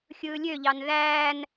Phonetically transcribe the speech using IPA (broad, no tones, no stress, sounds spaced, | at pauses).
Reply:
xʲ ɯː lʲ ø ʎ ɑ n ð æː n